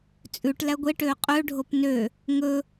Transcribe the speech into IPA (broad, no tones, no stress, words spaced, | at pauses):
t͡sʼʉʈ læɡʷeʈøː qʼøɖʱop nø | ŋɵ